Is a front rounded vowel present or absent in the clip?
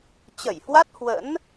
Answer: absent